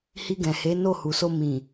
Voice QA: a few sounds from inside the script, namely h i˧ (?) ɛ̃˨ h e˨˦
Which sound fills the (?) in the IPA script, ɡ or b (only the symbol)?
ɡ